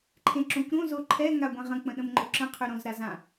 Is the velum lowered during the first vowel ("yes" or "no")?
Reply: yes